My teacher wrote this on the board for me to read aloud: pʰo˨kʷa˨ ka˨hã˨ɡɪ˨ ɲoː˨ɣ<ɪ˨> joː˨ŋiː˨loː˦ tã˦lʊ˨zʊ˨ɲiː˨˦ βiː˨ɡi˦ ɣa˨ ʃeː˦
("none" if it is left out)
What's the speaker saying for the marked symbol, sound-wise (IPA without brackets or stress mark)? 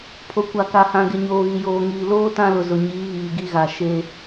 i˨